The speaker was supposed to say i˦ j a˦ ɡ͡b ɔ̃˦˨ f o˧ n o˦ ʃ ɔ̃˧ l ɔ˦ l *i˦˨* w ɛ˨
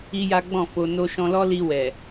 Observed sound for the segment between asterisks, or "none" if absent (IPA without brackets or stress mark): i˧